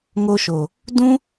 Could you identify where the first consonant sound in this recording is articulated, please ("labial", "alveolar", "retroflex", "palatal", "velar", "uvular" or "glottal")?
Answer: velar